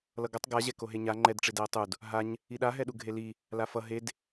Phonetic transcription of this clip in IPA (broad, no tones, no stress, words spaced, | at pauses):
lʌɡʌtˤ ɡaʑɛ koɦeɲa ŋ͡ǃɛdʈ͡ʂed ɛə̯tˤud | ɦaɲ | iɗaɦɛɗu ɡʱeli | lafʌ ɦed